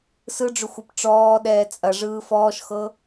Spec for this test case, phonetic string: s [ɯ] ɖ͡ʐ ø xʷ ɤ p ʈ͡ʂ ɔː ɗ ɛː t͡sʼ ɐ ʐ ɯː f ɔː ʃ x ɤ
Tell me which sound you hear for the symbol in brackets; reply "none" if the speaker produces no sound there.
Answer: ɯ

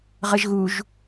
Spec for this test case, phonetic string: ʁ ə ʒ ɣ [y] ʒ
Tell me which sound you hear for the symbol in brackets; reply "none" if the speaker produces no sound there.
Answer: u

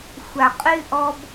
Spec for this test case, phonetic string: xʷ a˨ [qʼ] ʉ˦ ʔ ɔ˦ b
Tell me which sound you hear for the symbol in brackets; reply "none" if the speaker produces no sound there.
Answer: qʼ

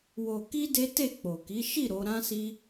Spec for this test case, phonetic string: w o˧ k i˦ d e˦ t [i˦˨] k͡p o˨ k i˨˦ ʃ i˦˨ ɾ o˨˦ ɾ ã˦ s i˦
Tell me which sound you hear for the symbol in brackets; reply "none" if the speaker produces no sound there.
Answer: e˦˨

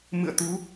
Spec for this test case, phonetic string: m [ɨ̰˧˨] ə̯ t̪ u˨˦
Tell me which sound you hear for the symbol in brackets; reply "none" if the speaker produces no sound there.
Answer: ɨ̰˧˨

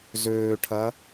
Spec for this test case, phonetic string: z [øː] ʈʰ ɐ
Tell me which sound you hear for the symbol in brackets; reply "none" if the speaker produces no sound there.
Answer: øː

